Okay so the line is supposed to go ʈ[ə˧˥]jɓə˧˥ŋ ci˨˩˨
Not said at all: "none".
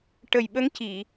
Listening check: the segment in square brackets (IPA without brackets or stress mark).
ə˨˩